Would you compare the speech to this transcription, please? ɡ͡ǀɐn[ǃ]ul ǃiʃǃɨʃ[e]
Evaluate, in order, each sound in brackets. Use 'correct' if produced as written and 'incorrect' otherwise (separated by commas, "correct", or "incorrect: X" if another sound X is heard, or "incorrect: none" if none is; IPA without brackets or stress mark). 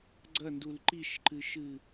incorrect: d, incorrect: ɨ